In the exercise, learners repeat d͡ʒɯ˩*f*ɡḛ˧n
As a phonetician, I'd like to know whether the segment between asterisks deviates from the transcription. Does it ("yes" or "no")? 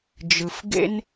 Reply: no